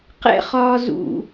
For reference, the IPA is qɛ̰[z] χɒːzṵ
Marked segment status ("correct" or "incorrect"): incorrect